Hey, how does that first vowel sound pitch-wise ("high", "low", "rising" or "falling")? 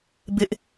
high